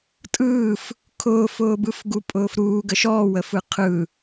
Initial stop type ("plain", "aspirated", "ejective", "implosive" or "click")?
ejective